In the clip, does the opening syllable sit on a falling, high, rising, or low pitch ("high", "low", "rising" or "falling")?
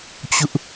high